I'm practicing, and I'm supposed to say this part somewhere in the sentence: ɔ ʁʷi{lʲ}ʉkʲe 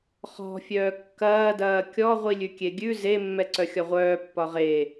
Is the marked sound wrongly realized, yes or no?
no